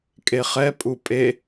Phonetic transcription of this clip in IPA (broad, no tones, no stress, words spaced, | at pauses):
kʼeχɛpʼu pʼe